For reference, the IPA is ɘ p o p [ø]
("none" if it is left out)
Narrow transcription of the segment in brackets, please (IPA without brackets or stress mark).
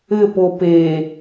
e